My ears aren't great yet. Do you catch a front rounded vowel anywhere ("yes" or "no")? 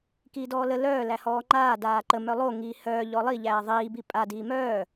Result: yes